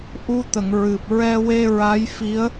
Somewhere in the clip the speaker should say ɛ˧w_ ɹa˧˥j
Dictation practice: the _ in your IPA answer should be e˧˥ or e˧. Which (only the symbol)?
e˧